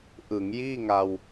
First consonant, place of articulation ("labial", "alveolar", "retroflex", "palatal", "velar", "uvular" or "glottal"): glottal